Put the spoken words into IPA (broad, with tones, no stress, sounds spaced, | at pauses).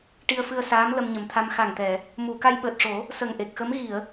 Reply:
ʈ i˧ ə̯ f ɨ˧ ə̯ s aː˧˥ m l ə˧ m ɲ ə˨˩ m t̪ʰ a˧ m x a˨˩ ŋ t̪ ɛ˨˩˨ | m u˨˩˨ k a˧ j ɓ əː˨˩ t̚ ʂ o˨˩˦ | s ə˨˩ ŋ ʔ e˨˩ k̚ x ə˧˥ m ɣ i˨˩˨ ə̯